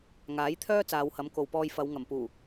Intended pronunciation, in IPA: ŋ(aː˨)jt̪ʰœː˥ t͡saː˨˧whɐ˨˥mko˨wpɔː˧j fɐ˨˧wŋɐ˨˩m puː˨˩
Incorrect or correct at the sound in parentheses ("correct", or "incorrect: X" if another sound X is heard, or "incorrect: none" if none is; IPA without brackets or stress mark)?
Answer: incorrect: aː˨˥